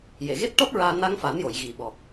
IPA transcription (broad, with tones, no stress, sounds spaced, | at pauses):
j e˨˩˨ ɣ e˦˥ t̚ ʈ ɔ˦˥ t̚ ɹ aː˧ n a˧ ŋ f a˨˩˦ n j o˨˩˨ j ɣ i˨˩ ɓ ɔ˨˩ k̚